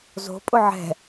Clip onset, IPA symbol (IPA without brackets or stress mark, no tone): z